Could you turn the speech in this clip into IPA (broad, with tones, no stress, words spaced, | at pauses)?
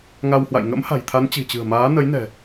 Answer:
ŋa˧whwa̰˧˨j ŋə̰˧˥mha̤˨˩jt̪ʰa˨˦n t͡ɕi̤˨˩t͡ɕɨ̤˨˩ə̯maː˨˦ nə˨˦jnɛ̤˨˩